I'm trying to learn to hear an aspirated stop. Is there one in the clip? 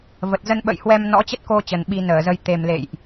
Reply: no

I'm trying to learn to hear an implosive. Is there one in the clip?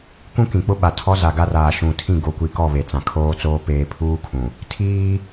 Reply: yes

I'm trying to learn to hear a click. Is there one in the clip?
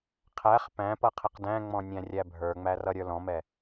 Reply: no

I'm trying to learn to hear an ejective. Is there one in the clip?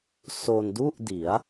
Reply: no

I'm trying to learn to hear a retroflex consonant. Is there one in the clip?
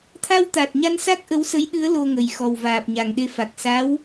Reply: no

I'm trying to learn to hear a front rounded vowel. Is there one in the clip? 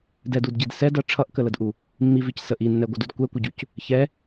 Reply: no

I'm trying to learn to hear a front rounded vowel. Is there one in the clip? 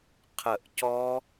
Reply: no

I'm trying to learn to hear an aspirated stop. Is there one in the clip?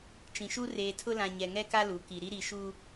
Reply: yes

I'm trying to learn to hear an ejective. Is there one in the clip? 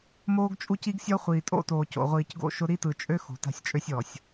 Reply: yes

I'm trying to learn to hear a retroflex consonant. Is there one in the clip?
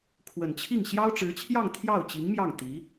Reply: yes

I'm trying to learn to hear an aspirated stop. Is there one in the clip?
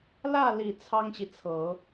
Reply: yes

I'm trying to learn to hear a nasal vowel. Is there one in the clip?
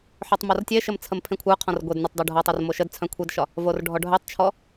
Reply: yes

